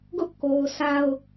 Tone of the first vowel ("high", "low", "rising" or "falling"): high